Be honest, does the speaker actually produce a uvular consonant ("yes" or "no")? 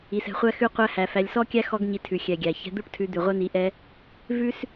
yes